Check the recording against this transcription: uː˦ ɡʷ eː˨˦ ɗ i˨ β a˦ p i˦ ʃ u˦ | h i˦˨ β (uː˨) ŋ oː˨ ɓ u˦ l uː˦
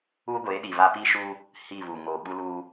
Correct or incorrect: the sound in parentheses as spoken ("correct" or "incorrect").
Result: correct